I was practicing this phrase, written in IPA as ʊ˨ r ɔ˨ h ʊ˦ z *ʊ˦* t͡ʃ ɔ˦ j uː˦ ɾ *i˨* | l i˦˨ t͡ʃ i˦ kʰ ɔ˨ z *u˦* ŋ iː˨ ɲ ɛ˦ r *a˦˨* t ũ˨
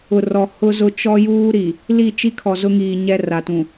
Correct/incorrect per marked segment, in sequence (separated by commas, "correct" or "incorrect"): correct, correct, incorrect, incorrect